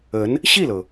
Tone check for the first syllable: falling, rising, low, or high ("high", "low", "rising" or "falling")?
rising